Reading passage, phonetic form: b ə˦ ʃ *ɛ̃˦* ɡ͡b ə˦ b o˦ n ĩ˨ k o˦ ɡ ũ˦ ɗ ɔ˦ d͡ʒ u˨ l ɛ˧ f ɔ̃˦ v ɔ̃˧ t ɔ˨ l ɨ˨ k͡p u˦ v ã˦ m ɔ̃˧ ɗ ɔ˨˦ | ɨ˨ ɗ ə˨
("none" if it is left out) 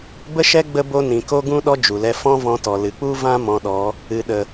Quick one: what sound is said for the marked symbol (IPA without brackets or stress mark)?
ɛ˦